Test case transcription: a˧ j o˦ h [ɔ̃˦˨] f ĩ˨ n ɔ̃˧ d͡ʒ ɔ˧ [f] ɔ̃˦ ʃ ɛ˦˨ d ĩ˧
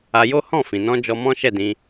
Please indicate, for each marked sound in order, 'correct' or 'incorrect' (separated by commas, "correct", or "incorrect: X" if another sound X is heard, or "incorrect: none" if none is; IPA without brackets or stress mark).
correct, incorrect: m